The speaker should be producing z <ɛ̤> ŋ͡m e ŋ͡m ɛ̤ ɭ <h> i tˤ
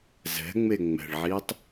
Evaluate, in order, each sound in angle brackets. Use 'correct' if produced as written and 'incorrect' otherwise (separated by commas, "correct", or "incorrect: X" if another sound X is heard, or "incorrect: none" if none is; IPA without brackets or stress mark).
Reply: correct, incorrect: ʕ